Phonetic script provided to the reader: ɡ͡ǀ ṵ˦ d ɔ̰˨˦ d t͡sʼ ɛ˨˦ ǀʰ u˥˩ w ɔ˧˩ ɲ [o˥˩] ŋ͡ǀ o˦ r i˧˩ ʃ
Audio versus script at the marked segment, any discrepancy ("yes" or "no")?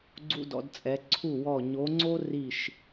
yes